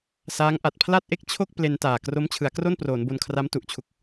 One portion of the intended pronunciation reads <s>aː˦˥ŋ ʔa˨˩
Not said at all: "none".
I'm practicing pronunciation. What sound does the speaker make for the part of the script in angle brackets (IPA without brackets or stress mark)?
s